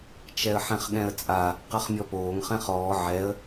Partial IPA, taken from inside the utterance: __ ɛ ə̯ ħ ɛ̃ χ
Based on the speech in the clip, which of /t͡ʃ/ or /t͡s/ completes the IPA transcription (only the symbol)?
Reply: t͡ʃ